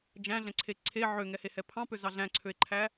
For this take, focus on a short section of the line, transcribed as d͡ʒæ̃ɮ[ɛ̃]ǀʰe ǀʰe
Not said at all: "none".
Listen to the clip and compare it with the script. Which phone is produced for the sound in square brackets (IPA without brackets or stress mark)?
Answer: ɛ̃